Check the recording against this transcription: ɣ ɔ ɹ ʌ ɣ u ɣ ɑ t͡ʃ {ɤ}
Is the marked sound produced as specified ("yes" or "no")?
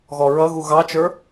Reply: no